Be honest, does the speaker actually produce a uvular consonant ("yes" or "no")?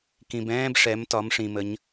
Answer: no